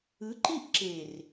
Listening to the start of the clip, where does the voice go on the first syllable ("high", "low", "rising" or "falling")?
rising